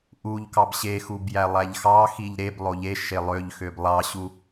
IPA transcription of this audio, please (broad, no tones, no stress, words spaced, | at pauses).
ʔuʎkɑb ɕexub jælˠæʎxɑxiʎ ɾeb lˠoʎeʃe lˠøʎxøb lˠɑɕu